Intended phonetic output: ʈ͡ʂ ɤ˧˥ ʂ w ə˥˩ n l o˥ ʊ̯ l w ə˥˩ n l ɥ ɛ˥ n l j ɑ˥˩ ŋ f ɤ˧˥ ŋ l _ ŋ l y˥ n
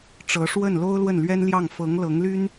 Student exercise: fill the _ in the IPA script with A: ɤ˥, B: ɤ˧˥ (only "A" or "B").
B